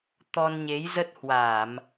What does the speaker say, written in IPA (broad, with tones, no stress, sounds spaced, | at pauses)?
t̪ ɔ˧ n ɲ e˨˦ j z ə˦˥ t̚ h w a˧˩˨ m